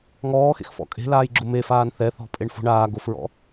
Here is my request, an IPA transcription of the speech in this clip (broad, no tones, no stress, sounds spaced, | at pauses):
ŋ ɔː x ḛ x f ɔ̰ kʼ e̤ l aː j ɡ͡ǁ ʊ m e f aː n θ ɛ θ ɔ̤ pʼ e ɳ f o̤ ɳ aː ɡ o f ɹ ɔ̰